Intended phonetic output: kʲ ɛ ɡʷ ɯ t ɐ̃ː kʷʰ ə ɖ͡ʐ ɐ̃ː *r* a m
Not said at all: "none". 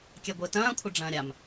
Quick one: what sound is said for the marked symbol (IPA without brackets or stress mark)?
ɾʲ